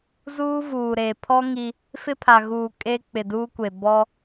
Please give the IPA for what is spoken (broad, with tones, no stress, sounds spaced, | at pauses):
z uː˦ v uː˨ ɾ e˨ pʰ ɔ˦ ŋ i˦ | f ɪ˦ pʰ a˨ ɣ uː˨ kʼ e˦ k͡p ɪ˨ d uː˦ kʷ e˨ b ɔ˦